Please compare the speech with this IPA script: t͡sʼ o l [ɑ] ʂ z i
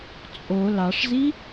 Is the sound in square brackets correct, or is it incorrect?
correct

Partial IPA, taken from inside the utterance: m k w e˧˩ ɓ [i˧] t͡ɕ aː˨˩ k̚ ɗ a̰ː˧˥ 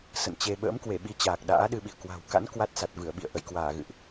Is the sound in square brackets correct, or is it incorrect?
incorrect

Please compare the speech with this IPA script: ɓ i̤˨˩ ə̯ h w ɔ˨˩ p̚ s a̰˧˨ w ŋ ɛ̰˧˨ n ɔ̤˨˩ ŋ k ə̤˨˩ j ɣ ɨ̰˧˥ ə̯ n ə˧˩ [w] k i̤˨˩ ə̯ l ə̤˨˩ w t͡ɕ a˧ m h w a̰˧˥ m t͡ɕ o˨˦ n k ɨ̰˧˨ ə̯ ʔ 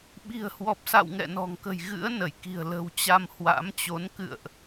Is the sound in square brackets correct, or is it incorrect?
incorrect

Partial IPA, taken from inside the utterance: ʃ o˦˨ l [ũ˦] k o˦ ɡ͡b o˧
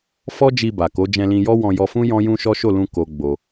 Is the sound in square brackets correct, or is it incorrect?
incorrect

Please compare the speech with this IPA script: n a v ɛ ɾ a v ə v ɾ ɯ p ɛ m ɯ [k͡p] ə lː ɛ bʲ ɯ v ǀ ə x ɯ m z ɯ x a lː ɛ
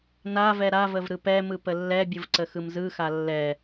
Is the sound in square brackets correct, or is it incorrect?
incorrect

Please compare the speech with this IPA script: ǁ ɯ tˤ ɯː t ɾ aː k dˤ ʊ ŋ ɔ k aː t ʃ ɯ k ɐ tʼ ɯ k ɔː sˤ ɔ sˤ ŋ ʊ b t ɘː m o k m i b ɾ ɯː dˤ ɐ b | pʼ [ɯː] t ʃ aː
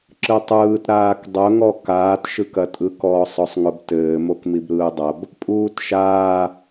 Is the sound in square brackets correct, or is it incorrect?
incorrect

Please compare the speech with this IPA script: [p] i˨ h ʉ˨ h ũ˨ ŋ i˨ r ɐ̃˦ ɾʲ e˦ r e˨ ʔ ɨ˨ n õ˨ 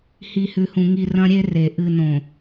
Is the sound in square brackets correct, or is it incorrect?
incorrect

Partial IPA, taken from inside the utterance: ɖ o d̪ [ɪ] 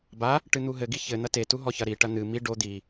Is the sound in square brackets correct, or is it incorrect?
incorrect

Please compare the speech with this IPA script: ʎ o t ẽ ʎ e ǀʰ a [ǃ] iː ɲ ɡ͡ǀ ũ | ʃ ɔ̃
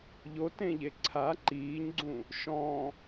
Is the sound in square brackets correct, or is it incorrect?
correct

